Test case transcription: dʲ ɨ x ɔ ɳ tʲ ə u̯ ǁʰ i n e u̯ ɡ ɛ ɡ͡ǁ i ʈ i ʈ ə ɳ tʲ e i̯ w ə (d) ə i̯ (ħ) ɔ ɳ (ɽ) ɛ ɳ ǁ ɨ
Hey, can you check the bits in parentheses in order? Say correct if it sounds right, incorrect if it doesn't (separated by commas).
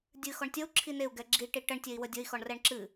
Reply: incorrect, incorrect, incorrect